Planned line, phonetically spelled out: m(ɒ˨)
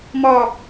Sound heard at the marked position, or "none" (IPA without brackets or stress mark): ɒ˨